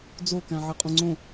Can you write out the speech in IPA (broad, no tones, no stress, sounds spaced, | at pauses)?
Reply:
d͡z o k æ̃ ʕ e qʼ ũ ŋ͡ǀ õ